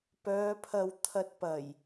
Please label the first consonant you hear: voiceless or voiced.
voiceless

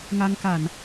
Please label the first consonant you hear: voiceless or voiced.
voiced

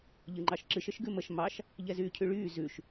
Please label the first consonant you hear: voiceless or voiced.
voiced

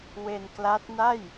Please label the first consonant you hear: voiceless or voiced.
voiced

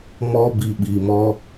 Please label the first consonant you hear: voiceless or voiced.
voiced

